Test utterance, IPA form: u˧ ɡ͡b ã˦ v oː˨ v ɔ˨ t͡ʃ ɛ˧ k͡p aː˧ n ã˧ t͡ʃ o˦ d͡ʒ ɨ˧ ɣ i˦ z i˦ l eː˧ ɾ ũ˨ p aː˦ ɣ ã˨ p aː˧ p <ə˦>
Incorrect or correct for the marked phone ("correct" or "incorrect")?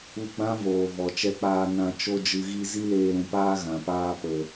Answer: incorrect